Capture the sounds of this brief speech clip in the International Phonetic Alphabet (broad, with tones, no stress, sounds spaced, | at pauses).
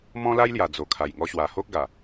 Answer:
m ɔ̃˦ l a˦ j l j a˨˩ d͡z o˨˩ kʰ a˨˩ j ŋ ɔ˧ ɕ w a˨˩ h o˦ k̚ ɡ a˨˩